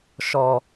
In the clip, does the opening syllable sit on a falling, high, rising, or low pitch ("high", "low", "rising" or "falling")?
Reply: low